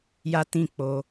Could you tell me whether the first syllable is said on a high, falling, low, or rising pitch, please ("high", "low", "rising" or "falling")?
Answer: high